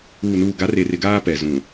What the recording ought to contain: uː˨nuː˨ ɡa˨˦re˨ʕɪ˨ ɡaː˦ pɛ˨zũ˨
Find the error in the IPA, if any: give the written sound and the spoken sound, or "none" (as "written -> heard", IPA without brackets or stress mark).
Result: ʕ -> r